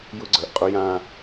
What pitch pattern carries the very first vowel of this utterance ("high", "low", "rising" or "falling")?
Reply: high